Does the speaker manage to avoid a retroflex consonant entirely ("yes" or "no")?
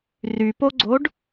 no